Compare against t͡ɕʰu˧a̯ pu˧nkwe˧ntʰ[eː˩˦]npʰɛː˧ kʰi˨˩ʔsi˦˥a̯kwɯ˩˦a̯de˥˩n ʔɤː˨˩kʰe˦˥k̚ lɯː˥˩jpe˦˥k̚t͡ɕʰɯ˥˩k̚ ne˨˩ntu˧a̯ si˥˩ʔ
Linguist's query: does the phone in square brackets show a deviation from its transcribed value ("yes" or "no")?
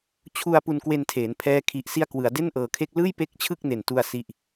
no